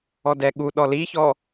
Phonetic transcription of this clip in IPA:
ɔ d ɛ ɠ u ɗ ɔ l i ç ɔ

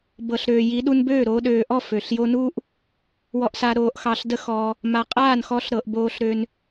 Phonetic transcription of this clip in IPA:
b ɤ˨ ɬ ɾ øː˨ j i˨˦ ɗ u˧ n b øː˦˨ ɾ oː˧ ɗ øː˨ ʔ ɔ˦˨ f ø˨ ɬ j o˦ n uː˦ ʔ | w ɔ˧ ʔ s a˧ ɾ oː˧ ʔ x ɑ˧ ɬ d ə˦ x ɔː˧ | m a˨ qʼ aː˦˨ n x ɔ˧ ɬ ɾ ɤ˨ ʔ b oː˧ ɬ ɾ ø˧ n

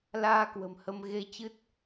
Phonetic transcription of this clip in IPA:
l aː˧ k w ə̤˨˩ m h ə˧ m ɣ e˧ t͡ɕ ɨ˦˥ t̚

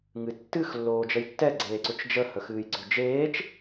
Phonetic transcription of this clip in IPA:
ŋ ɨ tː ɨ x lː oː d͡ʒ ə j tː ɛ ɡ͡ǀ eː ǀ ʏ t͡ʃ d͡ʒ ə h ə x ɨː j ɡ͡ǀ ʏ d͡ʒ eː t͡ʃ

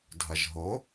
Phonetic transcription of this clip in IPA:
dʱ ɐ ʒ ɦ o

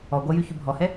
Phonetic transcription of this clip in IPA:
ɔ ɡʷ æ j y ç y bʱ ɔ h ɛ

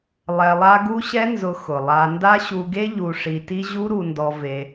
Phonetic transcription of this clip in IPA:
lˠ ɛ˧ lˠ a˦ ɡ u˦ ɕ ɛ˦ n z ʊ˧ x ʊ˨ lˠ a˧ n d a˦ ɕ u˧ ɡ e˦ ʎ u˧ ʂ i˧ t i˦ ʑ u˦ ɾ u˧ n d ɔ˧ v e˧

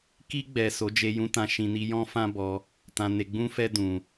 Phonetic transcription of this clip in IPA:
k i˧ ɡ͡b ɛ˨ s o˨˦ d͡ʒ e˧ j ũ˧ t ã˧ ʃ ĩ˧ n i˧ j ɔ̃˦ f ã˦ b ɔ˧ | t ã˧ n e˧ ɡ͡b ũ˦ f ɛ˦ d ũ˧

